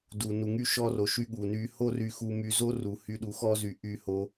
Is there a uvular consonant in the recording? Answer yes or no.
no